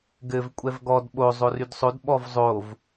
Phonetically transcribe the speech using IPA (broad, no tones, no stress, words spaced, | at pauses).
ɡɘv kʷʼɛvɡɔd ɓo zˤorydsˤod ɓɔvzˤov